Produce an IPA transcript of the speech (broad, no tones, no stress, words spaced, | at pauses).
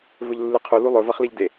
vɵʎlːɨqʰu lulˠɵvɐχ liʎde